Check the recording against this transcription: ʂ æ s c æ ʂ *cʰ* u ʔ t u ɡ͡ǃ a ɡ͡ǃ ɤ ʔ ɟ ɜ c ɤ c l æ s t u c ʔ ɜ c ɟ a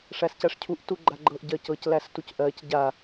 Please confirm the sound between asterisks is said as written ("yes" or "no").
yes